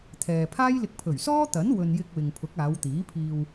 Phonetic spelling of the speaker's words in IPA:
t̪ʰ ɛː˨ pʰ aː˥ j l ɪ˧ k̚ pʰ ɵ˨˩ ɥ s ɔː˥ t̪ ɐ˨˥ n w ɵ˨ n j ɪ˧ k̚ w ɪ˨ ŋ pʰ ʊ˨˥ k̚ aː˨˧ w t̪ iː˨˥ pʰ iː˧ w

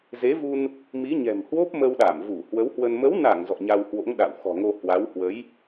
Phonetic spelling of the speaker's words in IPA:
z e˨˦ v u˧ n | m i˨˦ ɲ ɛ̤˨˩ m h w o˦˥ p̚ m ə˧ w ɗ a˧˩ m v u˧˩ h w ə˨˦ w h w ə˧ n m ə˨˦ w n a˧˩ ŋ z ɔ̰˧˨ ɲ a˧ w h w o̰˧˥ ŋ ɗ a̰˧˨ w x ɔ̤˨˩ ŋ o˧ h w a˨˦ w h w ə˨˦ j

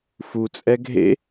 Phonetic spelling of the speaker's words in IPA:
f u t͡sʼ ɛ ɡʱ ḛ

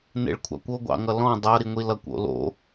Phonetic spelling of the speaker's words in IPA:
n ḛ ɭ kʷʰ ɑ̰ kʷ o ɡʷ ɑ̰ ŋ ʌ l ɔ̃ dˤ ʌ ɾ i ŋʷ i l ʌ kʷ o̰ l o̰

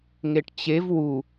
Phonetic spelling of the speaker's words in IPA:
ŋ e ʈ t͡ɕ e v w u

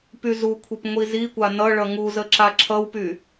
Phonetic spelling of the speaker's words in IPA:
p y z u kʷʰ i p ŋʷ i z i kʷ a n ʌ ɭ ʌ ŋ u z ə ǁ a ǁʰ ʌ w p y

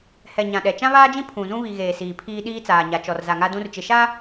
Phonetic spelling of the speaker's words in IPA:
h ɛ˨ ɲ ã˨ ɗ ɛ˨ t͡ʃ ã˦ β aː˦ d͡ʒ ĩ˦ pʰ ũ˨ z ũ˦ β i˨ ɣ eː˨ s iː˨ pʰ iː˦ ɗ iː˦ t͡s aː˨ ɲ a˨ t͡ʃ ɔ˨ r z a˨ ŋ a˦ d ũ˦ r t͡ʃ ɪ˨ ʃ a˦

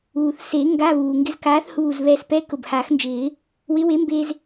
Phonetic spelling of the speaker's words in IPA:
uː˩ θ s e˨˩˦ ŋ ɡ a˧˥˧ β uː˩ ŋ ɡ ɪ˧ z k aː˨˥ θ h uː˧˩ z β ɛː˧ s p ɛ˧˥˧ k ʊ˧˩ b h aː˨˩˦ x n d͡ʒ ɪː˨˩˦ | w ɪ˨˥ w e˨˥ m b e˧ z

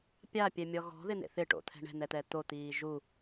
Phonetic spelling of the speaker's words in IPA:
pʲ a pʲ ɛ mʲ ɔ ɣ ɔ̤ ð ɪ n̪ ḛ θ ɪ ʈ o̰ t̪ʰ ɛ̤ ɳ ɛ̤ n̪ ɛ t̪ ɛ t̪ o t̪ iː ʒ u

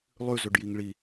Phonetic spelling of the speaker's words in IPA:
lˠ ʉ z ɵ ɖ j i ŋ ɭ i

